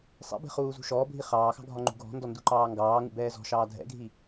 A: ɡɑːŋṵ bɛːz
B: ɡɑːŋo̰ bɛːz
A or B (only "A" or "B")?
A